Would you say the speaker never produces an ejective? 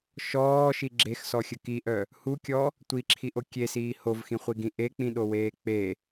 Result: yes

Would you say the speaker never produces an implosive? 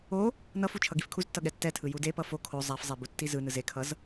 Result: no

